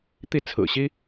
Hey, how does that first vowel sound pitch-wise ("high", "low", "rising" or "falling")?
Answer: falling